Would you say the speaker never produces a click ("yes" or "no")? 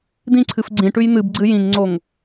no